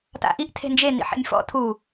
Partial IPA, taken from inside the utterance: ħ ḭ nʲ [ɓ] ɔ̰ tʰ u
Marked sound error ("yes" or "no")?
yes